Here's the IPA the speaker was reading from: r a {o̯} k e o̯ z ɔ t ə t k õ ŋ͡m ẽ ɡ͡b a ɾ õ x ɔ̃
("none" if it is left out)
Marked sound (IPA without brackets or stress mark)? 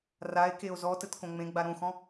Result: e̯